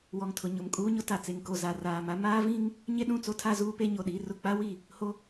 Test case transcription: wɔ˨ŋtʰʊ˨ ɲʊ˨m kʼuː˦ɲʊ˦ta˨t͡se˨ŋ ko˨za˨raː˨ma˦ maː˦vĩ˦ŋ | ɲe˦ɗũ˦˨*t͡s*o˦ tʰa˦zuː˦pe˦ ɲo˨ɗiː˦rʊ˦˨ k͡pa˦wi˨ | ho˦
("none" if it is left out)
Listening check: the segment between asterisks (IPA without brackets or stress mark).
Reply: t͡s